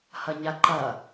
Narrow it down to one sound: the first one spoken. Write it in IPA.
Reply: h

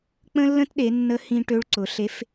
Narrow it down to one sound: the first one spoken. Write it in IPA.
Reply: k͡p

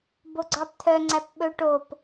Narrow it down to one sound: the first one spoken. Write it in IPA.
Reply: b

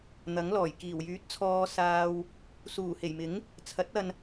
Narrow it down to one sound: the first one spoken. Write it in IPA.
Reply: n̪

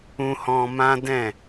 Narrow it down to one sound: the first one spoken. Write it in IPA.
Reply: ũ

